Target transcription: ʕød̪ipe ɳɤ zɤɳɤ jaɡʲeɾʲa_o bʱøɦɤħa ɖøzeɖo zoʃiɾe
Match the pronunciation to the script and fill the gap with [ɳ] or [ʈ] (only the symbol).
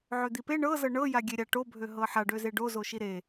ʈ